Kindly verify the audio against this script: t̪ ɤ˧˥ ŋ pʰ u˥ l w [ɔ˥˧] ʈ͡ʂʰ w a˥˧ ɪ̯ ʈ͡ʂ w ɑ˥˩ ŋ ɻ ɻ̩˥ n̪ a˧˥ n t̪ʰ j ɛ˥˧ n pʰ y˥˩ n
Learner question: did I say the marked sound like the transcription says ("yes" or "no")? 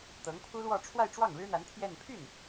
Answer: yes